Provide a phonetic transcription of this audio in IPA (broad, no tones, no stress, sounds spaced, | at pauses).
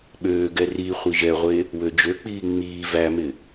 ɓ øː ɡ ɛ r i χʷ i ʒ ɛ ʁʷ e | w ø d͡ʒ ø k͡p iː ŋ͡m iː v æ m ɪ